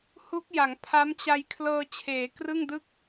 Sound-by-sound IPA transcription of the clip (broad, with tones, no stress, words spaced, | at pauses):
hu˦˥k̚ja˩˦ŋ pʰa˦˥mt͡ɕa˧j kʰlɤː˧t͡ɕʰeː˩˦ krɯ˥˩ŋdɯ˥˩k̚